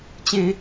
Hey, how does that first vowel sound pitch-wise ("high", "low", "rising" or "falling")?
high